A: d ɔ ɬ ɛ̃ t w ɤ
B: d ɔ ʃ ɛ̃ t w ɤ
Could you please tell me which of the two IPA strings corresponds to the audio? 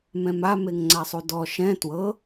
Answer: B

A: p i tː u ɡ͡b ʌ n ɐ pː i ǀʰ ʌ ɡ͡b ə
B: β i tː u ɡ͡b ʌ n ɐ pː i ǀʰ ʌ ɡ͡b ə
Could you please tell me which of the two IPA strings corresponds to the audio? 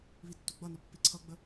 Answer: B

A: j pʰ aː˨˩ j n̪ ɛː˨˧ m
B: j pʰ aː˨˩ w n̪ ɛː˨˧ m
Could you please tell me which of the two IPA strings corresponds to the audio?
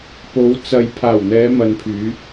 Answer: B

